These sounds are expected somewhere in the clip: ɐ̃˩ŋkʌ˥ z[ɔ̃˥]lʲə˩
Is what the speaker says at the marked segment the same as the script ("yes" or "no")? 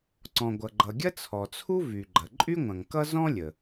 yes